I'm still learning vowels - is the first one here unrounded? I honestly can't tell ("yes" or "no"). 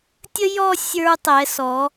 yes